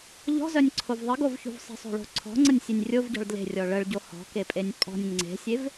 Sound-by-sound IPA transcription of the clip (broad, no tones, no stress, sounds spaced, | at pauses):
ʎ ɔ̤ z œ nʲ ǀʰ o v ðˤ ə ɡ o v ç ṳ v sˤ ə̤ sˤ o̤ ɭ o̤ ǀʰ ɔ̤ ŋ͡ǀ ə nʲ sʲ e nʲ rʲ o v ɟ ɔ̤ ɭ d l e̤ rʲ ɔ ɭ ə ɭ ɟ o h ɔ̤ k e pʼ e nʲ pʼ ɔ̤ nʲ ŋ͡ǀ e̤ sʲ e v